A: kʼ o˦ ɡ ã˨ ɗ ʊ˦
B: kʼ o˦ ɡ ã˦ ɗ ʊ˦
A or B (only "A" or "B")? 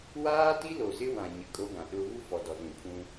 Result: A